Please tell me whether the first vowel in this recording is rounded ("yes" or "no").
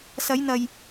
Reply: no